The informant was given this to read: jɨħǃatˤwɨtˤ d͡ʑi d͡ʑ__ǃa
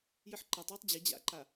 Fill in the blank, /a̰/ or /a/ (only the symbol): a̰